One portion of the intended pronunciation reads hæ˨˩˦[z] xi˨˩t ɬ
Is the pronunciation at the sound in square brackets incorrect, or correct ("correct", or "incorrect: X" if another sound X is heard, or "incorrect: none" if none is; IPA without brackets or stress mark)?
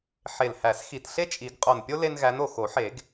incorrect: s